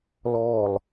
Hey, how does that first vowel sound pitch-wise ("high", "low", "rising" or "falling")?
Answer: falling